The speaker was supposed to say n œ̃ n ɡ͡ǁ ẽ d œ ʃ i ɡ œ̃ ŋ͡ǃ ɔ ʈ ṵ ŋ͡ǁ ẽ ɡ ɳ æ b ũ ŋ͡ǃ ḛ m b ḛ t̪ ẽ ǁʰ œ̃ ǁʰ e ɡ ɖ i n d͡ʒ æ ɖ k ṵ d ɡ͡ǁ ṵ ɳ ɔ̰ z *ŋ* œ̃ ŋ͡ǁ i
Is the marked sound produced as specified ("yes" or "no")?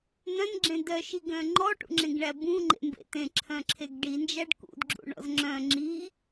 no